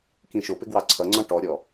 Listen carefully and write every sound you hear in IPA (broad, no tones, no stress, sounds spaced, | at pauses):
k ĩ ʃ ʊ p ɪ ɡ w ɑ ǀʰ ʌ ŋ͡ǀ ɔ̃ ʈ ɔ ɾʲ ɔ